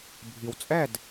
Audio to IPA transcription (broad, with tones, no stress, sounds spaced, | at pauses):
bʱ i˩ w t͡sʼ ɛ˥˩ d